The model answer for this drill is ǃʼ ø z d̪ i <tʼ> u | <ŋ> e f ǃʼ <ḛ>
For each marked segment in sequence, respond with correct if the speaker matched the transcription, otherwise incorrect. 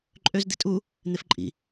correct, incorrect: n̪, incorrect: ḭ

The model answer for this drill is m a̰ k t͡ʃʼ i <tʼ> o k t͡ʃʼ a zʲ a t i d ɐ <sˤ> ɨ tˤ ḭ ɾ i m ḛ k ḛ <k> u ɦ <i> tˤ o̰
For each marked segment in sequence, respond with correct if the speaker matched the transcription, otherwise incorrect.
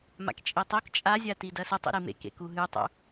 incorrect: tˤ, incorrect: s, correct, incorrect: ɨ

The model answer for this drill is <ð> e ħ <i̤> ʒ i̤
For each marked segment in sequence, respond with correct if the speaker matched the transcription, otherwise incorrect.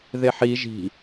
correct, incorrect: i

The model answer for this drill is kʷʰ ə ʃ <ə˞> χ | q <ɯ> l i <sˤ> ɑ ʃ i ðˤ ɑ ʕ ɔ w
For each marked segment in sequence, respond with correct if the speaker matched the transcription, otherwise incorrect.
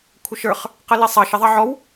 correct, incorrect: ə, correct

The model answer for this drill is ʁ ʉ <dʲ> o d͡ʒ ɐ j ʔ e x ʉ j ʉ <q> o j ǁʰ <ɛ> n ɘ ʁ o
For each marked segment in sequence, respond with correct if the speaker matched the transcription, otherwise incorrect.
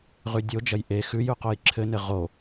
correct, correct, incorrect: ɘ

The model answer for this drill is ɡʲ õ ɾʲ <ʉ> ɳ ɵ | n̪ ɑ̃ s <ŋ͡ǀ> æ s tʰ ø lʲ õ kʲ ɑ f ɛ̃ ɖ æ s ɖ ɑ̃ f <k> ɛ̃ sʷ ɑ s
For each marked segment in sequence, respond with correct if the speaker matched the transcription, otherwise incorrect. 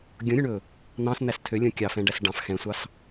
correct, incorrect: n̪, incorrect: x

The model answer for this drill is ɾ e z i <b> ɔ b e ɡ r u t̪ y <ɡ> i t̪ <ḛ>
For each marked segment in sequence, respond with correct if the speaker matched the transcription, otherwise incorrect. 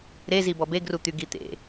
correct, correct, correct

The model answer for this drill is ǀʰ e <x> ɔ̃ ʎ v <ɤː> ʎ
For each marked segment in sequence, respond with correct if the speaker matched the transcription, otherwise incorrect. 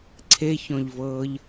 incorrect: ç, correct

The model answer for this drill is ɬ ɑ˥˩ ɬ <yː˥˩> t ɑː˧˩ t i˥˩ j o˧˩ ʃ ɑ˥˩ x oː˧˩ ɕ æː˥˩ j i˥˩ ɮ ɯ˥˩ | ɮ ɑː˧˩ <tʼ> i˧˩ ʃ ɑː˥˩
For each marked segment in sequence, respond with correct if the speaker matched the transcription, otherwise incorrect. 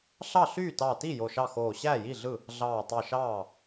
correct, incorrect: tˤ

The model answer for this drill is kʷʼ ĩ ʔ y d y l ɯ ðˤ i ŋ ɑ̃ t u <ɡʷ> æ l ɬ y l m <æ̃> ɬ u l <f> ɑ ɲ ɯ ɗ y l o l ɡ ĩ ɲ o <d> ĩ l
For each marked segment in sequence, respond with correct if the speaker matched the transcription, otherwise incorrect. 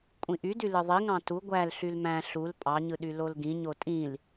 correct, correct, incorrect: pʼ, incorrect: tʼ

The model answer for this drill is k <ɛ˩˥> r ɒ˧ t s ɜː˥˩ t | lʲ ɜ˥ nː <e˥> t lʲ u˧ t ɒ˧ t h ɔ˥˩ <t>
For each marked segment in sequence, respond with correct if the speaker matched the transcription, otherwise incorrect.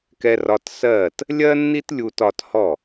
incorrect: ɛ˧, incorrect: i˥, incorrect: none

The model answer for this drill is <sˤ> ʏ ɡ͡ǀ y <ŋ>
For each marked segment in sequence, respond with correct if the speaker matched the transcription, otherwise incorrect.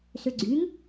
incorrect: s, correct

